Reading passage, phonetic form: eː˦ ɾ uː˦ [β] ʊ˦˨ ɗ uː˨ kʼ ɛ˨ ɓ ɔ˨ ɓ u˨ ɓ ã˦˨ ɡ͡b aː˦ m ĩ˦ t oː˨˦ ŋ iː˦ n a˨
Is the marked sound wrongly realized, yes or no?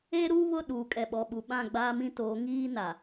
no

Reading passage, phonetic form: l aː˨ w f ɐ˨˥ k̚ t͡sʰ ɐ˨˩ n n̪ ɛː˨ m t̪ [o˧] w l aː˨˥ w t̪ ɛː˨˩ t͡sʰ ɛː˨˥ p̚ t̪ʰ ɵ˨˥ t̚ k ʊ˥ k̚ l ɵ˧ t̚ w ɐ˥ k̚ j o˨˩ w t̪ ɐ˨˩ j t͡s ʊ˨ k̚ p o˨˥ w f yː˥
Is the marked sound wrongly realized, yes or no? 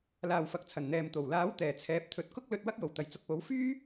yes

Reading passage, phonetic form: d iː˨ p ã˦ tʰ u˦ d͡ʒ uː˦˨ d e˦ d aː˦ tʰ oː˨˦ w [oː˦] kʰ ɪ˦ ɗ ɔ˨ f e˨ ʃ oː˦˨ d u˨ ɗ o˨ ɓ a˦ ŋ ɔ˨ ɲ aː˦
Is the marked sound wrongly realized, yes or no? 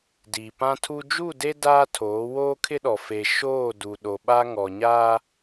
no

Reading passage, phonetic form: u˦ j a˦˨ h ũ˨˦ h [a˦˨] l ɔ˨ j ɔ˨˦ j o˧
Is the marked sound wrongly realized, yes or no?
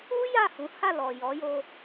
no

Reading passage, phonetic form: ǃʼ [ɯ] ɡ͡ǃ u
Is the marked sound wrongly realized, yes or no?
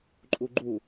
yes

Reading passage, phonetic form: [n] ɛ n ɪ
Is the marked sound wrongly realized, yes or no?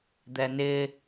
yes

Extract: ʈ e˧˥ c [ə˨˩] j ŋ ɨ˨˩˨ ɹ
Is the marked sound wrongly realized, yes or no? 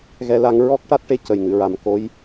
no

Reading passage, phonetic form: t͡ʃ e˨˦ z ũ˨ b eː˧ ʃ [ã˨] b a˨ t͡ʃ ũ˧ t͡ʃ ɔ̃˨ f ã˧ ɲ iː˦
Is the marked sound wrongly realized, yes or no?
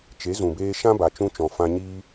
yes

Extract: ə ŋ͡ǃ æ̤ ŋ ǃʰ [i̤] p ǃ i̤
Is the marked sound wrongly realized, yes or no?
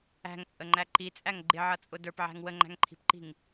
no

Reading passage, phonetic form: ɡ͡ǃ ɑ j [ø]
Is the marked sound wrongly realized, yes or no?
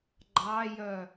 yes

